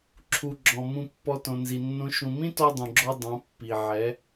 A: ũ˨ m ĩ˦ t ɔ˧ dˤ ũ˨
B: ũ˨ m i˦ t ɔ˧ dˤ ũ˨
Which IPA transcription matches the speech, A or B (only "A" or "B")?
A